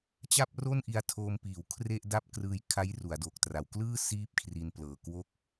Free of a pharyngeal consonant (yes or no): yes